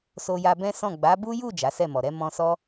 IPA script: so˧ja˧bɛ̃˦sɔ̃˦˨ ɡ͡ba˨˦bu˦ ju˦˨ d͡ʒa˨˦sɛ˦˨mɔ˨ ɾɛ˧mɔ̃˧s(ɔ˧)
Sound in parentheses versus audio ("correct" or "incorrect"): incorrect